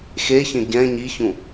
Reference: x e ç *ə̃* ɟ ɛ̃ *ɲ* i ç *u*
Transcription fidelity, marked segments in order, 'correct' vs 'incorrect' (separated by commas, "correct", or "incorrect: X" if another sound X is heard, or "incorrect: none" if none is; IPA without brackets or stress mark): correct, correct, incorrect: ũ